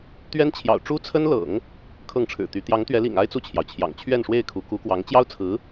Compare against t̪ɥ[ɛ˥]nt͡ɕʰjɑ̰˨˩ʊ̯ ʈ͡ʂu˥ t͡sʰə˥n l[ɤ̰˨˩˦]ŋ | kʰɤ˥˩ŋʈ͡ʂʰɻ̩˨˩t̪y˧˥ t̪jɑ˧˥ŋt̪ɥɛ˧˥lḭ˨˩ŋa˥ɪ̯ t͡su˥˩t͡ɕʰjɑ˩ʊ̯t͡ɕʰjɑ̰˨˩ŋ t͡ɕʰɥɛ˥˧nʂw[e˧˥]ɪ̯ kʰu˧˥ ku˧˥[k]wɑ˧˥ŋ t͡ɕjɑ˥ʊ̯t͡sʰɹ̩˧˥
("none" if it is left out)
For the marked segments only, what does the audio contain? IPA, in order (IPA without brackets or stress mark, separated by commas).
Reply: ɛ˥, ɤ̰˨˩˦, e˥˩, k